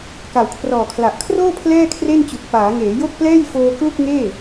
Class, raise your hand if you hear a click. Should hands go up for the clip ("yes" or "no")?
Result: no